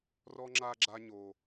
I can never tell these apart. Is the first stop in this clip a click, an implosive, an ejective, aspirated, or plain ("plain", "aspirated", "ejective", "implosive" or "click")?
click